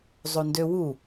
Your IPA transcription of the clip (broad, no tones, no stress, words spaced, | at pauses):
zˤondøwu